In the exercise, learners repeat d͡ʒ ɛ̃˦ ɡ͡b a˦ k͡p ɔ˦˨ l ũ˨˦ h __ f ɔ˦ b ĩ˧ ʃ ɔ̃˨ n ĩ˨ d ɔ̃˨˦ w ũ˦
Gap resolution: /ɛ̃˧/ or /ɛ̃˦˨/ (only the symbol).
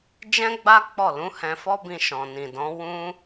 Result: ɛ̃˧